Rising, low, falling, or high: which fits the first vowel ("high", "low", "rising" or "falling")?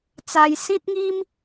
high